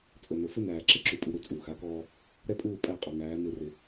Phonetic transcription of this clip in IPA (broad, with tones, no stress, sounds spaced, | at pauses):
t͡sʼ ɵ˨ n ɵ˨ f ɪ˦ n æː˨ ǁ ɪ˦ ǁ u˨ pʼ u˨ ɾ u˨ t͡sʼ uː˨ x a˦ k ɔː˦ | ɾ ɛ˦ pʼ uː˦˨ pʼ æ˦˨ qʼ ɔ˨ ŋ æː˨˦ n ɯ˦˨ r ɪ˦